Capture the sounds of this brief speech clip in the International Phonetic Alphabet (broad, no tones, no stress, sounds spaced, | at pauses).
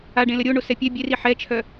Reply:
a ɖ ẽ l ə ɾʲ o ɳ o s ɛ pʲ ɛ bʲ e r i ħ ɛ t͡ʃʰ œ